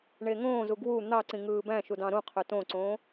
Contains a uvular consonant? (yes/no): yes